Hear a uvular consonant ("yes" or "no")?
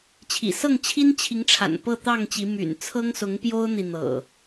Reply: no